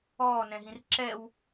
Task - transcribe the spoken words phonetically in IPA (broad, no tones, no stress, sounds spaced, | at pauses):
ɔː n ɛ̃ ɦ ĩ r ǁ ɛ w